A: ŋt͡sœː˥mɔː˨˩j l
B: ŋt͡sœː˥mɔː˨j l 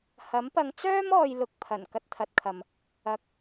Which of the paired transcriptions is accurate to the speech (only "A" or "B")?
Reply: B